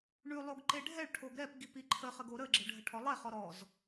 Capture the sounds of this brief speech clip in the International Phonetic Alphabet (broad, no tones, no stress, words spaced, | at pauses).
ɳʉlˠoɡ ǃeɖʱɛɭʈʰoɡ ɾɛpɡip iǃʰəχəɡ oɾəɡ͡ǁə ɖʱəʈʰɔlˠɛχɔ ɾɔz